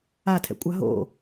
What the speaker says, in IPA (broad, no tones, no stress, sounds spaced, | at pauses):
a tʰ ɛ̰ kʷʼ a ɦ o̰